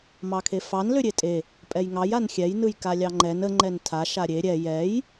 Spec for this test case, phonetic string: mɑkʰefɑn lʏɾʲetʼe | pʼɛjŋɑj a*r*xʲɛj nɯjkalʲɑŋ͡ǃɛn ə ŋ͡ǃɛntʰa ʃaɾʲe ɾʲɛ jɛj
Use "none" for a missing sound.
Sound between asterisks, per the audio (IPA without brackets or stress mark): n